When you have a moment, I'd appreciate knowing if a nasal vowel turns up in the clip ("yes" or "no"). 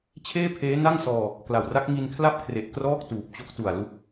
no